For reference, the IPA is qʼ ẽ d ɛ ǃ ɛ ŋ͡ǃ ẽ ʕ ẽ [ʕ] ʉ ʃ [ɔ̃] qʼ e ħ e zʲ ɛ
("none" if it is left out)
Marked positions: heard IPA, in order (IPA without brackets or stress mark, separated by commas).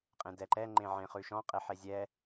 χ, ɔ̃